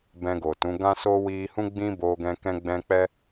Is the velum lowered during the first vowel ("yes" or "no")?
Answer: yes